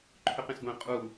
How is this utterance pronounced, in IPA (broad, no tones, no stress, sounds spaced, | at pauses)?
ǃʰ ʏ q ẽ s ɡʷ ẽ qʼ u